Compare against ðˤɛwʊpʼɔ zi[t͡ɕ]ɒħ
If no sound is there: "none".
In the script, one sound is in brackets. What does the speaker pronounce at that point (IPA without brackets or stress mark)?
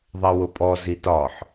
t